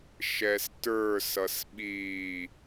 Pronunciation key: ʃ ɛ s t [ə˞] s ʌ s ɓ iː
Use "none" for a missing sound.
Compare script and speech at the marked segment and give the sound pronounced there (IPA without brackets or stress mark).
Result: ə˞